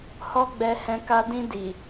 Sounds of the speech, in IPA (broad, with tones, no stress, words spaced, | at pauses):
hɔ˦ɡ͡bɛ˧hɛ̃˧ ka˧dĩ˧ di˨